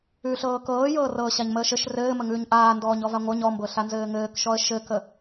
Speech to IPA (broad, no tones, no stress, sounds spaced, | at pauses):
ʉ ɬ ɤː k ɤː j ɤː r ɤː ɕ a ɲ m əː ʃ ɘ ʃ r ɘː m ə ŋ ʉː ɲ ʔ aː n d ɔː ɲ ɔ v a ŋʷ ə˞ ɲ ɔ m b ɤ ɬ a n z ɘː ŋ ɘː k ʃ ɔ ə̯ ʃ ɘ k ə